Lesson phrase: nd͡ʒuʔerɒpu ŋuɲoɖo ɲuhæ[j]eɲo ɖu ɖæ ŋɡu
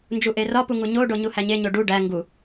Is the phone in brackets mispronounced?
yes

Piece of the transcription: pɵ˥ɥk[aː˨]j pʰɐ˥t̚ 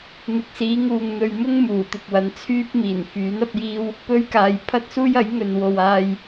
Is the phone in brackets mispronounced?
no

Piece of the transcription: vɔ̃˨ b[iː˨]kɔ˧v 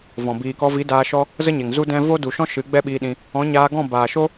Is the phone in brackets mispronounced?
no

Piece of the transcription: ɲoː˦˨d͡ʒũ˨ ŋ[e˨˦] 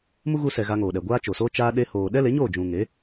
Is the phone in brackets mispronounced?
no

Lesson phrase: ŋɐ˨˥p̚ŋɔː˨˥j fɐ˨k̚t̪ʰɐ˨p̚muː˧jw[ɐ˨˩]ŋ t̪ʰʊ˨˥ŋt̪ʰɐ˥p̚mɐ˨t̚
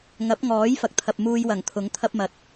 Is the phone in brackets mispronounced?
no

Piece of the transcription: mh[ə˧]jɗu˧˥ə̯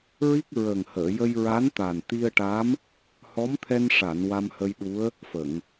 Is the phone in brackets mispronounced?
no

